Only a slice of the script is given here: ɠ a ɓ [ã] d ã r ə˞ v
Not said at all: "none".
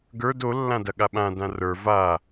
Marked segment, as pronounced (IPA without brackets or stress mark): ã